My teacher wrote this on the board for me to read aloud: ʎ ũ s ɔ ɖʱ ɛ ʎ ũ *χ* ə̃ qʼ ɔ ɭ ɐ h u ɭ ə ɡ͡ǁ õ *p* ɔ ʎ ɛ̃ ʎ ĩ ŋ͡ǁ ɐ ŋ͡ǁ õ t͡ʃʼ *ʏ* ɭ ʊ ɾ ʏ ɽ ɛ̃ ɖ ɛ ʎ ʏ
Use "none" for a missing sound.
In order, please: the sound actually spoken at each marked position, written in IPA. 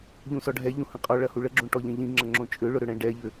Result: h, ʈ, ʏ

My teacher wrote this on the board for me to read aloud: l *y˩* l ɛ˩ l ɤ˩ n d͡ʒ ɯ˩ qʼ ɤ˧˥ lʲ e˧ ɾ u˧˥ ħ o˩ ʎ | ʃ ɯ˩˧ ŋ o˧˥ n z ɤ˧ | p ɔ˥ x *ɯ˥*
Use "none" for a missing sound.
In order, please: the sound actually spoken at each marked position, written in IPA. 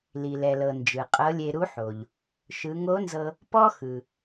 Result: i˩, ɯ˩

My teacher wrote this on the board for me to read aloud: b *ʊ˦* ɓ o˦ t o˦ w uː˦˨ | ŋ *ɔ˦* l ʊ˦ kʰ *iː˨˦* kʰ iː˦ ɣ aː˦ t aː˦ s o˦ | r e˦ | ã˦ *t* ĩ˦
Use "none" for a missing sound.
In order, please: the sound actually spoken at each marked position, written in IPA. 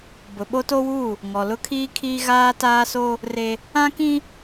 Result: ʊ˨, ɔ˨, iː˦, k

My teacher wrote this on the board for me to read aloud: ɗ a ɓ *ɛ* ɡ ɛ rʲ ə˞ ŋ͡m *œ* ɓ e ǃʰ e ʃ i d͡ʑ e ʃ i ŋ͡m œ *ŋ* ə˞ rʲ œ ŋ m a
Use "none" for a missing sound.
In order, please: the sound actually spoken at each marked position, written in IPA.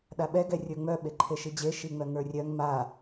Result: ɛ, œ, ŋ

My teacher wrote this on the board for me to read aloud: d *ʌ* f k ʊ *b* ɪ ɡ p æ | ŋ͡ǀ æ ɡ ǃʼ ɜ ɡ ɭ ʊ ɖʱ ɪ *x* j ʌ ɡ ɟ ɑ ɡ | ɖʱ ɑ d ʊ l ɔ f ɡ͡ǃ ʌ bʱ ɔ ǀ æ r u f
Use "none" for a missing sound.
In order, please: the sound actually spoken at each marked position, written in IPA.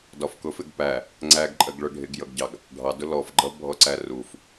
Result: ɒ, f, ɡ

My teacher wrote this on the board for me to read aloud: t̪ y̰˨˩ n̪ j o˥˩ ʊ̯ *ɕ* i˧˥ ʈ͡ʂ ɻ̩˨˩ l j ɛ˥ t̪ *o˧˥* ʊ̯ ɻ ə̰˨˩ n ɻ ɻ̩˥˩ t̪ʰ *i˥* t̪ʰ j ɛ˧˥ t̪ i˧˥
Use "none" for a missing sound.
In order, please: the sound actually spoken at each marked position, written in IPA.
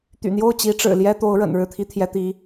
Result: t͡ɕ, o˧˥, i˥

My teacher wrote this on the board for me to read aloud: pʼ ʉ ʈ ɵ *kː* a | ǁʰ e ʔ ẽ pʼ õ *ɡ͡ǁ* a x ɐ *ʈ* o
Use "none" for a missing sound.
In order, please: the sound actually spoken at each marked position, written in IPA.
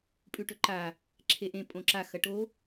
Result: ǃ, ǁ, ʈ

